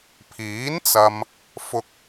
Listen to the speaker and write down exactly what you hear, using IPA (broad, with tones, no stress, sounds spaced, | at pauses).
pʰ iː˨˥ n t͡s ɐ˧ m | f ʊ˥ k̚